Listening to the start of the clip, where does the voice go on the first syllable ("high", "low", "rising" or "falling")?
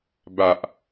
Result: low